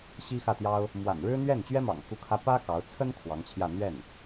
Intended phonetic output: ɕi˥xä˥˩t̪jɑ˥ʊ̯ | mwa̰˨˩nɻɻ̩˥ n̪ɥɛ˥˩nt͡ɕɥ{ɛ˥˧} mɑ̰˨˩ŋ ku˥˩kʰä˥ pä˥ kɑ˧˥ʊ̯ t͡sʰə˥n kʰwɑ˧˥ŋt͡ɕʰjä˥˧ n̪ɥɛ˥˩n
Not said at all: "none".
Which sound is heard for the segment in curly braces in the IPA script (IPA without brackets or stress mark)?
ɛ˥